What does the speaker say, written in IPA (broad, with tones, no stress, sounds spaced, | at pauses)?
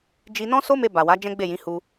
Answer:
d͡ʒ i˧ n ɔ̃˦ s o˦ m e˧ b a˨ w a˨˦ d͡ʒ ɛ̃˦ ɡ͡b e˦˨ j ĩ˨˦ h u˧